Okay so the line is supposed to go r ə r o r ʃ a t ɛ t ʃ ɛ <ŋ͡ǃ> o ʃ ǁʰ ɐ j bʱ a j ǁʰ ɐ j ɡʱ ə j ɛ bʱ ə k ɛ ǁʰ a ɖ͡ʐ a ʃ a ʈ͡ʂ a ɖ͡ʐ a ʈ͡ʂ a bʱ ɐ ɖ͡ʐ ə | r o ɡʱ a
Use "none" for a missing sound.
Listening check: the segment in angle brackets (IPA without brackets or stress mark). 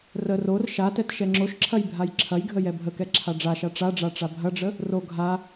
ŋ͡ǁ